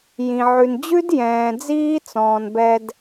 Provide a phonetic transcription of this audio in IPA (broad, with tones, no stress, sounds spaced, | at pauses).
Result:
j ĩ˨ ʕ ʉ˨ n d͡ʑ ʉ˦ d j ɛ̃ː˨ d͡z iː˦ t͡s ɔ̃ː˨ n b ɛ˧ d